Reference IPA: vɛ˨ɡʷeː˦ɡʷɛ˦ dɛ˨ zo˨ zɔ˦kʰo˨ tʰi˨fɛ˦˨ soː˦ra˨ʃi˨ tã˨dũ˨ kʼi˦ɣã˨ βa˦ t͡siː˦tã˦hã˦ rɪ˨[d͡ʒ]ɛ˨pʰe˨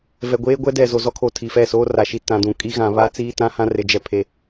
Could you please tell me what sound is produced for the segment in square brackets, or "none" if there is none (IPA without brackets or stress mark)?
d͡ʒ